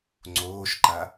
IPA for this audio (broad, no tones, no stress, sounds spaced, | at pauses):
ŋ͡ǀ oː ʃ ǃ a